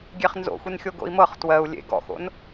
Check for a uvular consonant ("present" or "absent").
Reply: present